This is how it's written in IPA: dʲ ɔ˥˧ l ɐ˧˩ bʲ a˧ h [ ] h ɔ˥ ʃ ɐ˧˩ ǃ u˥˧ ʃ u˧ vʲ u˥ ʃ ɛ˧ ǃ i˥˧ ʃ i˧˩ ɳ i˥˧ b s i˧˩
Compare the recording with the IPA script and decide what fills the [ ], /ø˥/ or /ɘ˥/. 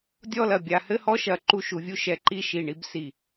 ɘ˥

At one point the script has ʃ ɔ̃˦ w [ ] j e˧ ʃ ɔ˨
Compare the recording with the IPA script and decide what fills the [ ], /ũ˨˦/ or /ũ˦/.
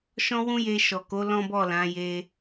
ũ˦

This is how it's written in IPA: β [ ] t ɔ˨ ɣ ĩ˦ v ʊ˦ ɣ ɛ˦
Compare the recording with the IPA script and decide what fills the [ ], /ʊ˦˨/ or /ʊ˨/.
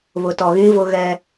ʊ˨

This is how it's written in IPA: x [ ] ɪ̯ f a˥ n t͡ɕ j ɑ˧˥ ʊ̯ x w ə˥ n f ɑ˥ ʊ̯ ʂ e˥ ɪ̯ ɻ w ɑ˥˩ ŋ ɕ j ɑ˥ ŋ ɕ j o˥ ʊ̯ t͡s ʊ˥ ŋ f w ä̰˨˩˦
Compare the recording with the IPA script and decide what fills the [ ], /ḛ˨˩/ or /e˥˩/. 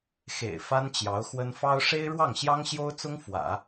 ḛ˨˩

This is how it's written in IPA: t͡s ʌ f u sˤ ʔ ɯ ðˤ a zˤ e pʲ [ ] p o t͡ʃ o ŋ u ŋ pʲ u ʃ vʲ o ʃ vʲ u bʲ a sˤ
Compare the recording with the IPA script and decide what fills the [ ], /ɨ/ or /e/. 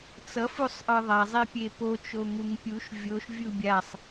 e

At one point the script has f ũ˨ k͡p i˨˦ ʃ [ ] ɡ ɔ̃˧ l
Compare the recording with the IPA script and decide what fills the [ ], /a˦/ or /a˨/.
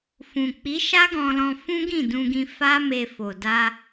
a˦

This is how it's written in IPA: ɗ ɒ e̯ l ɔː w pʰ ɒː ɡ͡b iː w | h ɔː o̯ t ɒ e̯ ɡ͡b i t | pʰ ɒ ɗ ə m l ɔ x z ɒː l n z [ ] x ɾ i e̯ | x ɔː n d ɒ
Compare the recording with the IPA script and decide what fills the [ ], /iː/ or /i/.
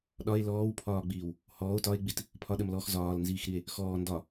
iː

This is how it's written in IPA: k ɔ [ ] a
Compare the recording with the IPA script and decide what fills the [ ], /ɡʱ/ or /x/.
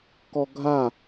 ɡʱ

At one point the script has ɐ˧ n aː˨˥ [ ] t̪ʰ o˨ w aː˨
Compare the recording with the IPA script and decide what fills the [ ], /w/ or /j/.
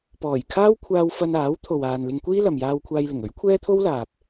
w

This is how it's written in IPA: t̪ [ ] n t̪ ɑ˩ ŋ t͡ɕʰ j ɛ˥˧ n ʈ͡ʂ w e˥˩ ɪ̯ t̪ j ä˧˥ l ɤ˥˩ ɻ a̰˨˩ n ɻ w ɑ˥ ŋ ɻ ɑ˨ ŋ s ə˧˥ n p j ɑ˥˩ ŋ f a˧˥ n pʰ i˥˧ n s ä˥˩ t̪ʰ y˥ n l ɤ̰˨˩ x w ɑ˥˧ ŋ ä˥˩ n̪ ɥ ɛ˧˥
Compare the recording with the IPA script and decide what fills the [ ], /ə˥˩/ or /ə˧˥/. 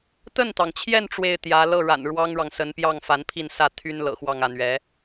ə˥˩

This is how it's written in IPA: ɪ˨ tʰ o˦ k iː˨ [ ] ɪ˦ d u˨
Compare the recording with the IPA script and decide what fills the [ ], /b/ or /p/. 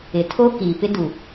p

